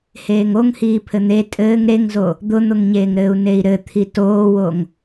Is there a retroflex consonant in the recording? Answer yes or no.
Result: no